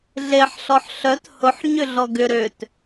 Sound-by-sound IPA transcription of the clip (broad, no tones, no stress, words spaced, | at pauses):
ɮeħ ɬɔħɬœt hʊħ ɲʏɮɔɡʏ ɾøt